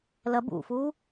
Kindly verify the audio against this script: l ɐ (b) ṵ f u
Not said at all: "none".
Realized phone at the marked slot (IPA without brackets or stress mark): b